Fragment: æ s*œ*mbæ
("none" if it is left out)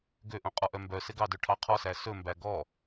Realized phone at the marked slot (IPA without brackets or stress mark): ɵ